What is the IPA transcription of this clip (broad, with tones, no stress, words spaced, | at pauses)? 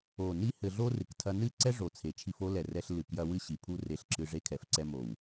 o˨ ni˦hɘ˧ɮo˦ rɨ˨ktʰɐ˧nɨ˦ ǀɛ˦ʐo˨ t͡sʰe˨t͡ʃʰi˧fo˦lɛ˨ rɛ˧ɬlɨ˨kjɐ˧ wɨ˦ɕi˨pʰu˦ re˧ɬǁɨ˧ ʐe˧kʰɛ˨fǀɛ˧ mo˨w